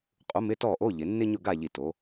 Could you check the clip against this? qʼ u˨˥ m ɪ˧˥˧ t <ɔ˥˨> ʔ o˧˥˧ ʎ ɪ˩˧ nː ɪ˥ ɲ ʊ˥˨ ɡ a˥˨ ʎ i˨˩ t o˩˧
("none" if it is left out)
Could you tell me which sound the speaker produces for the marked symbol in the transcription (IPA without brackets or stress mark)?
ɔ˥˨